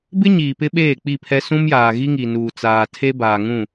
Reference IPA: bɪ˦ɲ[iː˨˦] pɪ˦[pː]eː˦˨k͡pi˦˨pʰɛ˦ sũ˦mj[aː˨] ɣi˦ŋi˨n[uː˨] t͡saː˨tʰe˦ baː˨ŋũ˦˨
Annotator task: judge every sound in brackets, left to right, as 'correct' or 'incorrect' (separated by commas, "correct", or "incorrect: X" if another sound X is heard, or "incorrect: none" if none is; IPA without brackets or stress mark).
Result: incorrect: iː˨, incorrect: ɓ, correct, correct